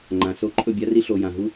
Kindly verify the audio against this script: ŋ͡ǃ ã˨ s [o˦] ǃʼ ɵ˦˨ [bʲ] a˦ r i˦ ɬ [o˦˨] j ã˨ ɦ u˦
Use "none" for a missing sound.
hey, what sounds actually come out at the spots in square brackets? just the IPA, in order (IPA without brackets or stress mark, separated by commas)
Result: o˦, bʲ, o˨